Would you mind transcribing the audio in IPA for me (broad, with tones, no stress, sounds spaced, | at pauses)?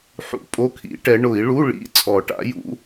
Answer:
ħ ṵ˨˩˦ pʼ o˧˥˧ kʰ ḭ˨˩˦ ʈ ɛ˨˦ ɳ ʊ˨˩˦ i̯ ɭ u˧˥˧ ɭ ḭ˧˥˧ t͡sʼ ɔ˨˩˦ ʈ a̰˨˦ j ṵ˨˦